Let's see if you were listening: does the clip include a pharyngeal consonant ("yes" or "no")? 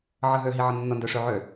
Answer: yes